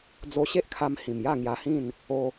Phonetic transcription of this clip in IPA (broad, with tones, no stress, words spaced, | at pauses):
d͡zo˧ɕe˦ʔkʰa˧m hĩ˨˩mja˥˧ŋja˧hĩ˥˧n | o˧